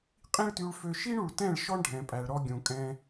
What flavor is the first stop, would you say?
ejective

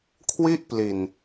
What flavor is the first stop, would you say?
aspirated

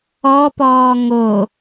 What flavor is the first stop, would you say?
plain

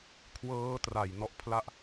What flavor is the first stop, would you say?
aspirated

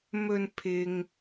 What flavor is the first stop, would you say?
aspirated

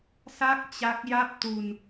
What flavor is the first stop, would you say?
plain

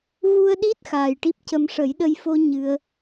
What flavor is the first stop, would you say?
implosive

